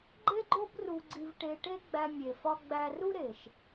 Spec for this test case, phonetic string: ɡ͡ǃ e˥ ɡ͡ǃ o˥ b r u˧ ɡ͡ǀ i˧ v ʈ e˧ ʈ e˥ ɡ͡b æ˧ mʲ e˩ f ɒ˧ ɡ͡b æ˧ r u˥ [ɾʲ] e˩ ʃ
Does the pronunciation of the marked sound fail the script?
yes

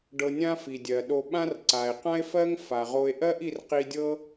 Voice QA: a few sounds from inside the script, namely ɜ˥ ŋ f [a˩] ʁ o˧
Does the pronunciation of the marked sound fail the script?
no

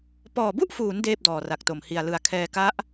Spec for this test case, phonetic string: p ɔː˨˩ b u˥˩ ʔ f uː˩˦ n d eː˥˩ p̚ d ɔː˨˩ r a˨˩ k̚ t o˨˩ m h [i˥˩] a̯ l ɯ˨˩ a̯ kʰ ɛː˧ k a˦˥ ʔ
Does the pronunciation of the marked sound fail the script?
yes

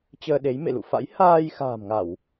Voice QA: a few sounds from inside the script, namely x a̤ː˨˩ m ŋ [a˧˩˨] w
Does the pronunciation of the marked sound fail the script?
no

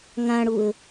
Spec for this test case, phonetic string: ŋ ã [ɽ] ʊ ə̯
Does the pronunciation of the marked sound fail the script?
no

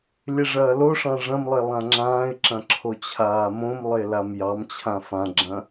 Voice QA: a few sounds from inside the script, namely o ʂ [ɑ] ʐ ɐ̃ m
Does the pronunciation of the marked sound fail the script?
yes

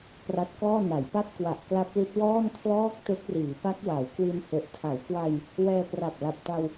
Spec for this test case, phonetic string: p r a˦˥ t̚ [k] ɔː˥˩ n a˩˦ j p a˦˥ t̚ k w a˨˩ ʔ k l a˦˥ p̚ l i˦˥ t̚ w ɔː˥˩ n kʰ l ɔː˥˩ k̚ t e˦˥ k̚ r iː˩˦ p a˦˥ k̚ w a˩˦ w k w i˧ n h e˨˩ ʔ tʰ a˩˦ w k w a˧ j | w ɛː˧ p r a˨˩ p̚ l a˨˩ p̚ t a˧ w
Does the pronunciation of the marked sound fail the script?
no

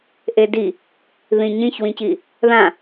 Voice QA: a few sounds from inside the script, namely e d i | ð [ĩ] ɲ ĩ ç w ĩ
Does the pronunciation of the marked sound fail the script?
no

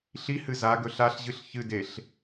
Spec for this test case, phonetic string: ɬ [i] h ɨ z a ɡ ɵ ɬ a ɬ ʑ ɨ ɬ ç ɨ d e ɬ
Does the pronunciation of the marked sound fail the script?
no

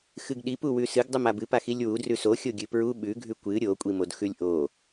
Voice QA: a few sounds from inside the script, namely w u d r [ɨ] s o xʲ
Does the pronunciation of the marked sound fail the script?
yes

